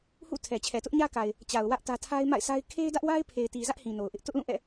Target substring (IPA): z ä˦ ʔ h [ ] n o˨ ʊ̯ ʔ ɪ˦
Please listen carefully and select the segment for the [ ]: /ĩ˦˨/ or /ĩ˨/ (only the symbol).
ĩ˨